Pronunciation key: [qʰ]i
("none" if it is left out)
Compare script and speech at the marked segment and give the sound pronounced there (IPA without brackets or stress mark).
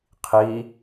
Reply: qʰ